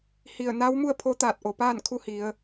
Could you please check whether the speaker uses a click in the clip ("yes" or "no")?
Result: no